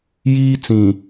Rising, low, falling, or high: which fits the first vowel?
high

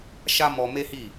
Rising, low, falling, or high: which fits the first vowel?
high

